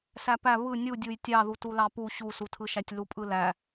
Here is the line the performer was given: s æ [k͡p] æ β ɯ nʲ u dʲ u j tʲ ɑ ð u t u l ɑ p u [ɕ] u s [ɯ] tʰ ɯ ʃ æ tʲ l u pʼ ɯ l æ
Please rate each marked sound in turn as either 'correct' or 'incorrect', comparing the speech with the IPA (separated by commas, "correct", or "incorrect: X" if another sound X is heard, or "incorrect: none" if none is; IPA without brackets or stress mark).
incorrect: p, correct, incorrect: u